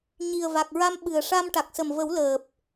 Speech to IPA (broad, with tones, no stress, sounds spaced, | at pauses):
ɲ i˨˩ ə̯ v a˨˩ k̚ ɹ a˧ m ɓ ɨ˨˩ ə̯ ʂ a˧ m ʈ a˨˩ k̚ s ə˨˩ m v ə˨˩˦ w l əː˨˩ p̚